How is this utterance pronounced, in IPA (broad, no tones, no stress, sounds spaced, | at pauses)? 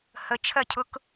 h ə t͡ʃʰ ɜ cʰ ʊ k